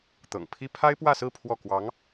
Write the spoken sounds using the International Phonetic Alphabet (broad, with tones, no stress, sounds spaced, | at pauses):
t̪ ɤ̰˨˩ ŋ pʰ i˥ pʰ a˥ ɪ̯ p w ä˥˧ s ɹ̩˥˧ pʰ w ɔ˥˩ k w ɑ˧˥ ŋ